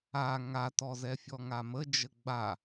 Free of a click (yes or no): yes